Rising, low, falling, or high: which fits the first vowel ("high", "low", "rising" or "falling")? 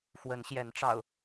rising